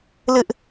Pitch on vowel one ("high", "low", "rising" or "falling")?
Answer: high